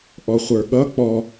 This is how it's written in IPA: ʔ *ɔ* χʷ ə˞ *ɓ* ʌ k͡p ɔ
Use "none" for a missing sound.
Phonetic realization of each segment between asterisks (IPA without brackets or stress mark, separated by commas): ɔ, ɠ